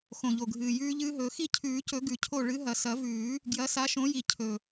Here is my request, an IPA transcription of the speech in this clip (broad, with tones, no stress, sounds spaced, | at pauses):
x õ˨˩ ʎ o˨˩ ɡʱ ɨː˨˩ j ʉː˦˥ ʎ ɨː˦˥ ɦ ɵː˨˦ x i˦˨ cʰ ʉː˨˩˦ c ɵ˨˩˦ ɡ ʉ˨˩˦ cʰ o˦˨ ɭ ɨ˨˦ ɦ ɐ˨˩ s ɐ˨˩˦ v ʉː˨˩˦ | ɡ j ɐ˨˦ s a˨˦ ʃ õ˨˦ j i˨˩ cʰ ɵ˨˩